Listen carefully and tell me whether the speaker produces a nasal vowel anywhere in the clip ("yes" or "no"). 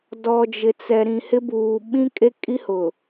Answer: yes